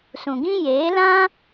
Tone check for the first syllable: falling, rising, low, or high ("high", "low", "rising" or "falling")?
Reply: low